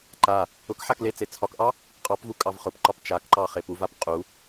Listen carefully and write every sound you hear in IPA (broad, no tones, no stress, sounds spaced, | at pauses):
ǃ a | ʊ k ħ a k l e t͡s e t͡sʰ ɒ k ʔ ɑ | qʼ ɑ p v u kʼ ɑ v χ ʊ p ǃ ɒ p t͡ʃ a k ǃ ɑ χ e p u v a p qʼ u